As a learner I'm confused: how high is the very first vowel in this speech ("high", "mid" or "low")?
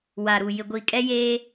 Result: low